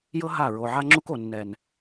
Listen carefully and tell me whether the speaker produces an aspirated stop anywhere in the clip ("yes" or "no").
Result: no